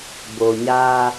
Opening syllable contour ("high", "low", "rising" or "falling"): low